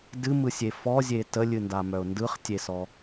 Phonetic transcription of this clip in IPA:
d ɨ m ɯ sʲ e f ɔ zʲ e t ə lʲ ɨ n d a m œ ʊ̯ n d ɯ χ tʲ e s ɔ

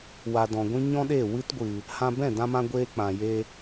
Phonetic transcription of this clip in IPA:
w a˨ d ɔ̃˨ ɡʷ ĩ˦ ɲ ɔ̃˦ ɗ e˦˨ w ɨ˦ t ɡʷ ɨ˨ | h ã˧ b ɛ̃˦˨ d ã˦ m ã˦ ɡʷ eː˦ k͡p ã˨ j e˧

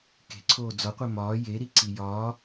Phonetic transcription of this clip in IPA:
k e̤ ǀʰ oː d͡z ɒ qʷ e m ɒː j e ɾ i ǀ i j ɒː

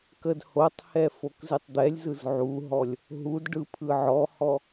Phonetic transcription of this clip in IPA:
k ə d h o tˤ h ɛ f o k z ɨ tˤ d̪ ɛ lʲ z ɯ z ʕ u ɦ ɔ lʲ | ɦ u d ɖ ɯ pʰ ɯ ʕ ɔ h ɔ

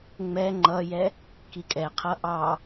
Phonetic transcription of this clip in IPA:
ŋ͡m ɛ ŋ͡ǃ ʌ j ɛ | k i kʼ ɛ qʰ ʌ ʔ ɑ

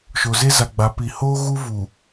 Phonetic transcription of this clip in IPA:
ʃ o˨ z e˦ z a˨ ɡ͡b a˨˦ p i˨ h oː˦ ɣ u˦ v u˨

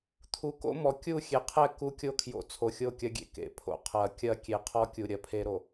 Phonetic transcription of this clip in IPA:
t̪ʰ u˨ k o̰˦ m ɔ˨ kʲ u˦˨ xʲ e˨ qʰ ɛ˦˨ k u˦ kʲ o˦ kʰ j o̰˨ t͡sʰ o˨ xʲ o˦˨ kʲ ɐ˦ ɡʲ ḛ˨ k ḛ˨ pʰ o̰˨ qʰ ɐ˨ kʲ ɐ˦ kʲ e˨ qʰ ɔ˦ kʲ u˨ ɾʲ ɐ˨ pʰ e˦ ɾ o˨

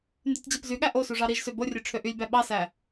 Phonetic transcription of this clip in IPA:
n d y tʲ d͡ʑ ɑ p z y ɠ æ ʔ o s u ʐ ɑ ɾ i ʒ s ø b o rʲ ø ʈ͡ʂʰ ø ʔ y lʲ b æ ɓ ɑ s æ

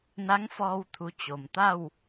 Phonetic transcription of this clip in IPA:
n a˧˥ ŋ f ɔː˧ w t̪ʰ u˩˧ t͡ɕ o˩ m t̪ a˥˨ w

